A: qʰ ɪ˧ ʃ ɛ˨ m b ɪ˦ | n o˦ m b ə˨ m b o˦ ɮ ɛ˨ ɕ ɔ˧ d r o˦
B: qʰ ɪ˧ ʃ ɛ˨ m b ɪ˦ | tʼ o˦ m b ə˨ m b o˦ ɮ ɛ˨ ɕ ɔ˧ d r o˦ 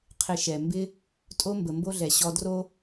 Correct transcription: B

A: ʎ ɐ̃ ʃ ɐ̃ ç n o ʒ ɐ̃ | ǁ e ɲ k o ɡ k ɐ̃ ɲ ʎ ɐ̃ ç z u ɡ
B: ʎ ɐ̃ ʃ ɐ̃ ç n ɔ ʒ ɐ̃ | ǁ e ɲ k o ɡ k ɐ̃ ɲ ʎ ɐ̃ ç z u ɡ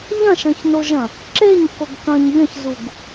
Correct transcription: A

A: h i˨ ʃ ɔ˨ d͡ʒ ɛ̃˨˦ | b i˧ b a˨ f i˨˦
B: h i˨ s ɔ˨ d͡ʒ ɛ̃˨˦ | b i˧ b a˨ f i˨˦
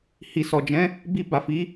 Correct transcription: B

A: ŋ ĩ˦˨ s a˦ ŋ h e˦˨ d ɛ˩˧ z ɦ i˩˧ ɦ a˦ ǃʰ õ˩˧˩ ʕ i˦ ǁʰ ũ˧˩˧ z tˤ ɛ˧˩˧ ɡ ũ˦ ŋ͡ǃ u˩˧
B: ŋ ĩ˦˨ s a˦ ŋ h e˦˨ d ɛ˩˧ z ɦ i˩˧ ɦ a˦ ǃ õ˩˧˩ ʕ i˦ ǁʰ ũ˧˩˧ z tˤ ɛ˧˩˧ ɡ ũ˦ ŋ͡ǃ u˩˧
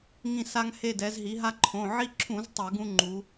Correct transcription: A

